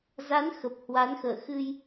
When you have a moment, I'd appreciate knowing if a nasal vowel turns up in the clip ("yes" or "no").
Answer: no